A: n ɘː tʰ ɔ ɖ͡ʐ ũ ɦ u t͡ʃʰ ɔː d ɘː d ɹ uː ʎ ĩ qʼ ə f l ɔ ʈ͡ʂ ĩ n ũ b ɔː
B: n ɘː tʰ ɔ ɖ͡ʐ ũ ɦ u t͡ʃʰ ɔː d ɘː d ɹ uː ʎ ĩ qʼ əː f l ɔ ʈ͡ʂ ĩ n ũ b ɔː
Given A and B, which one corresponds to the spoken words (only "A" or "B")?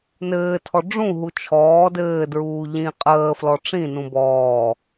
B